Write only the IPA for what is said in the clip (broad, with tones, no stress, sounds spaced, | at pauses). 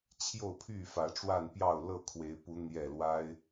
t͡ɕʰ j o˥˨ ʊ̯ pʰ y˥˨ f ä˨˦ ʈ͡ʂ w a˥˨ n p j ɑ˥˨ ʊ̯ l ɤ˥˨ kʰ w e˨˦ ɪ̯ p u˨˦ n̪ j ɛ˥˨ l w a˦ ɪ̯